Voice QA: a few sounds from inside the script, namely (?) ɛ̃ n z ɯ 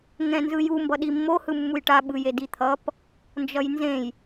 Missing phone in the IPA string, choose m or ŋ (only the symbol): ŋ